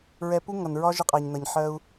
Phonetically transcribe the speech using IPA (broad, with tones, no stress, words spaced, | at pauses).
ɹɛ˧pu˥ ŋʌ˩nɹɒ˥ʒə˧qʼæ˩ɲ nʌ˩ɲħɜ˧u̯